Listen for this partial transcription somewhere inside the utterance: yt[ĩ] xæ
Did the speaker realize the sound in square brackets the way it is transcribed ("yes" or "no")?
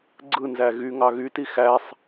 no